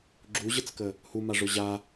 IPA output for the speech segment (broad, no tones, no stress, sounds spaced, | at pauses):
ɡ͡ǁ u ʑ ə t͡s k ə | h u m a ʐ ʊ ʑ a